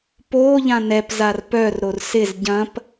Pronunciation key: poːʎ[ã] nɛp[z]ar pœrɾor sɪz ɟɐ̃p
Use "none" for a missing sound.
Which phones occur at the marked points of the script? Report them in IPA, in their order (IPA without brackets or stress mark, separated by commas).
ã, z